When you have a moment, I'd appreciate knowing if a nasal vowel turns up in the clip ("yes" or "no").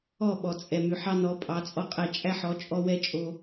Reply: no